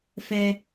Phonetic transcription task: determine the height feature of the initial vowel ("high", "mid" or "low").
mid